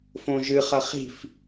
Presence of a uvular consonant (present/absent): present